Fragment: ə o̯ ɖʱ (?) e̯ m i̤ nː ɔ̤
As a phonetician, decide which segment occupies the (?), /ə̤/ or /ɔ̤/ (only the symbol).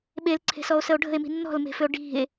ə̤